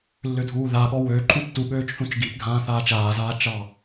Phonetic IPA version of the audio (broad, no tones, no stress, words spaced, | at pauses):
lːʏdʱuːðaɠɔ wø ǃʰũtːuɠøːt͡ʃ θũt͡ʃɡipɡʱãː θaːt͡ʃaːzaː t͡ʃɑ